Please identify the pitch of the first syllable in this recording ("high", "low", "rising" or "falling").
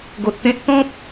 low